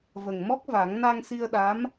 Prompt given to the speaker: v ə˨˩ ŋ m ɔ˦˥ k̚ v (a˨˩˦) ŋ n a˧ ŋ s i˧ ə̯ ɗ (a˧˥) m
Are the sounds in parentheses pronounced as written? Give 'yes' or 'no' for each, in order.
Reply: yes, yes

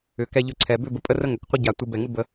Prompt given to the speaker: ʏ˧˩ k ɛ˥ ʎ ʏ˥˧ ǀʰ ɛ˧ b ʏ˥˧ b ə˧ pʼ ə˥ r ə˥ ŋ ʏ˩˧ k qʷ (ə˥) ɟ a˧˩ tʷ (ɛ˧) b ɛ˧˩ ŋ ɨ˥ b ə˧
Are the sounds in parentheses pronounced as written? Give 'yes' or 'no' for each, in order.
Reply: yes, no

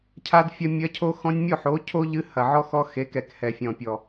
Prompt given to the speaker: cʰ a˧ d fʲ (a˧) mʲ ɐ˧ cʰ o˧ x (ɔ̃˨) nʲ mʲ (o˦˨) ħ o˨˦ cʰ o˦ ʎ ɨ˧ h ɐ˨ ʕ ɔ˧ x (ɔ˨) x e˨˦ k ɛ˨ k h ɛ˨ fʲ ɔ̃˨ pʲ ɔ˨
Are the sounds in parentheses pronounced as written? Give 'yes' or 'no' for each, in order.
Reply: no, no, yes, no

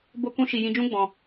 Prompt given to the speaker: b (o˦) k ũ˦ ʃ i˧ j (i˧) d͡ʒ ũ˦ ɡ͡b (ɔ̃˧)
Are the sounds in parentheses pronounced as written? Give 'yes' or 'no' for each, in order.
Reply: yes, no, yes

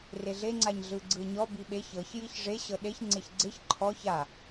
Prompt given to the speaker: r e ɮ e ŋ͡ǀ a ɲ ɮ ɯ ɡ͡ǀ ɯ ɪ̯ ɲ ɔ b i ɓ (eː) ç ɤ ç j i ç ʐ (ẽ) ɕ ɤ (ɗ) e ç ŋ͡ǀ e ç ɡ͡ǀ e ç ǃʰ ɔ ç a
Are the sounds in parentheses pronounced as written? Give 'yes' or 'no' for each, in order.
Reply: no, no, yes

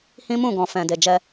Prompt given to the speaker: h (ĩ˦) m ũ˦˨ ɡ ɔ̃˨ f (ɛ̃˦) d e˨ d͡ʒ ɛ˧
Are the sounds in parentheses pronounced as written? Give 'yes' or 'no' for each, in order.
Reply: yes, no

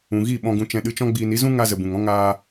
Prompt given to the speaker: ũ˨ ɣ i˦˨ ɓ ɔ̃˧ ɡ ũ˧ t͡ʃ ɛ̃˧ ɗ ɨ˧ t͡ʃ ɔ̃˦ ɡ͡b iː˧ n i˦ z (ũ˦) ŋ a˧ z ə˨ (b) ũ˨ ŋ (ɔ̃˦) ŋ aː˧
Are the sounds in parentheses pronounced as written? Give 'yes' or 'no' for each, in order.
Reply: yes, yes, yes

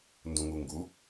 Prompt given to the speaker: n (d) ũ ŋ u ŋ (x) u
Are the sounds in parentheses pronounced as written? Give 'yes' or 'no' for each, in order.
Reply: yes, no

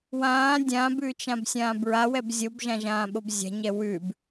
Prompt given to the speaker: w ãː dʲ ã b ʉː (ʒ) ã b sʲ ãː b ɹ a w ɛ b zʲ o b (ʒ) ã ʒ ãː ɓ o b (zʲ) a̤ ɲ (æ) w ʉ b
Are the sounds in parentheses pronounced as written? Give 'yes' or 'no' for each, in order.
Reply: no, yes, yes, no

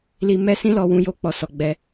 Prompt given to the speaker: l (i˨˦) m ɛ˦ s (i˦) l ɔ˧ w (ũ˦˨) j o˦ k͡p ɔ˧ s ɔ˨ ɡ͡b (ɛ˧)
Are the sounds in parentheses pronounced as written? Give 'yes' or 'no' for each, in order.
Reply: no, no, no, yes

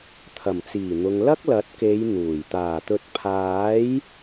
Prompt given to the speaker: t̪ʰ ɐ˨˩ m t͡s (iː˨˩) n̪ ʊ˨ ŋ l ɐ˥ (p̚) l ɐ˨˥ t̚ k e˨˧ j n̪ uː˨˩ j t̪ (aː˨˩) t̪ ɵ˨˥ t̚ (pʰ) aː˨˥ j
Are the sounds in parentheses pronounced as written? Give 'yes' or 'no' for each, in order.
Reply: yes, no, yes, yes

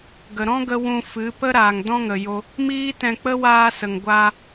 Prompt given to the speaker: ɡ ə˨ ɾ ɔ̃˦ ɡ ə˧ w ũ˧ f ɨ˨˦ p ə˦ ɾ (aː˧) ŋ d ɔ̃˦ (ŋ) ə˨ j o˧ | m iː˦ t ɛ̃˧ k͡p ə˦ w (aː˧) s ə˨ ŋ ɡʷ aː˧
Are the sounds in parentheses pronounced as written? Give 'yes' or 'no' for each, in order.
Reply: no, yes, yes

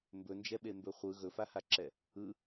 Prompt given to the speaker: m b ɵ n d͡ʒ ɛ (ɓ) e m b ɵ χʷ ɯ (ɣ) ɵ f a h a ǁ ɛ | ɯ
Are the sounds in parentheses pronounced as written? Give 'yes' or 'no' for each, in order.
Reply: yes, yes

